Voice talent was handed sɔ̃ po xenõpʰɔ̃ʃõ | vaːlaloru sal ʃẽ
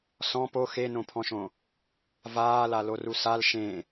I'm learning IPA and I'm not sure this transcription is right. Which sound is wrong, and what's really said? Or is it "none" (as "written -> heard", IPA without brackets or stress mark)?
none